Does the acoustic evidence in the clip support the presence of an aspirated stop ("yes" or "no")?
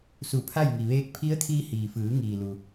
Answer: yes